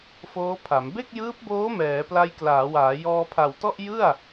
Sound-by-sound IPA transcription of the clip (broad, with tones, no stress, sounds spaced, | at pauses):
f oː˦˥ pʰ a˩˦ m b e˥˩ k̚ j ɯː˦˥ p̚ b oː˦˥ m ɛː˩˦ p l a˧ j k l aː˩˦ w aː˩˦ j ɔː˧ pʰ a˨˩ w t ɔ˥˩ ʔ j ɯ˥˩ a̯